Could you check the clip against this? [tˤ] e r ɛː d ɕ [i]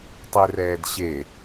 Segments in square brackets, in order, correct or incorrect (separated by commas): correct, incorrect